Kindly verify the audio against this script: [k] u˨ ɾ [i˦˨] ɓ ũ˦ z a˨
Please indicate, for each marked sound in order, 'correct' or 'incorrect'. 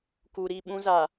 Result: correct, correct

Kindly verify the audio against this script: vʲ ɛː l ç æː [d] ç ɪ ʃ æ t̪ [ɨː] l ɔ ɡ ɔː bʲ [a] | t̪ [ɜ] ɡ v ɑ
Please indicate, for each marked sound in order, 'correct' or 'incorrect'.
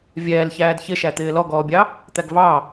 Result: correct, incorrect, incorrect, incorrect

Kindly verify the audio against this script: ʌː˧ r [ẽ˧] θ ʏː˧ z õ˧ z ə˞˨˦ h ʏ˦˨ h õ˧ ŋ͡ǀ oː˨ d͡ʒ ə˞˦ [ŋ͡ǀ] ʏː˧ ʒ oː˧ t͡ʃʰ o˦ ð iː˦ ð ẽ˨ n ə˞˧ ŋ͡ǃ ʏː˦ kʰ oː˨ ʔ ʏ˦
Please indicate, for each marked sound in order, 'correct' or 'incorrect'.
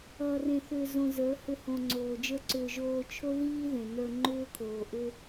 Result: correct, incorrect

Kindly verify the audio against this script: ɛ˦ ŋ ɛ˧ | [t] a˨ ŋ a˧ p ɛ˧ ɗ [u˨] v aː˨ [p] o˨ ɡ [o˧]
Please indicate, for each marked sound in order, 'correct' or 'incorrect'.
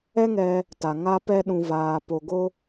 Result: correct, incorrect, correct, correct

